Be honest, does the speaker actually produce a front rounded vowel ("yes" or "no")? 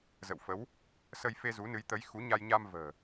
no